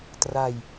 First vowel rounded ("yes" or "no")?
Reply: no